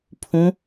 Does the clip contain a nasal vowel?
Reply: yes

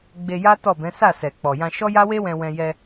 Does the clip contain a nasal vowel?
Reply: yes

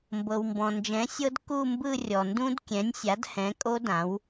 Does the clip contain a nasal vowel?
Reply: yes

